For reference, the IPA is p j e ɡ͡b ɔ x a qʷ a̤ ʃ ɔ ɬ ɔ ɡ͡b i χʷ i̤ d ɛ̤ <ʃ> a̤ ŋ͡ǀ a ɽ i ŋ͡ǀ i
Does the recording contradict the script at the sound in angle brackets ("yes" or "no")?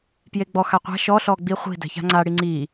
yes